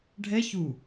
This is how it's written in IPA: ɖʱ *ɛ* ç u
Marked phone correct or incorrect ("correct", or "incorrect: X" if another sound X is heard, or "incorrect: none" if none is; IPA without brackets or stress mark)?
correct